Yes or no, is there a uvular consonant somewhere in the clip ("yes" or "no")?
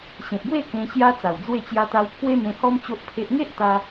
no